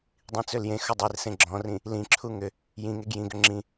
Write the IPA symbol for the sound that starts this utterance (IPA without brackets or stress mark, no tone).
dˤ